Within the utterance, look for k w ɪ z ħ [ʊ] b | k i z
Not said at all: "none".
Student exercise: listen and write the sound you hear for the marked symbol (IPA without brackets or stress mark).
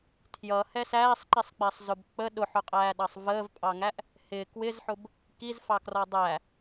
ʊ